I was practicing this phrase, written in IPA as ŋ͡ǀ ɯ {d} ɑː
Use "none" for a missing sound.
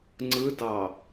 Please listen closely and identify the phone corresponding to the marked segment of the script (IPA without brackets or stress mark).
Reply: d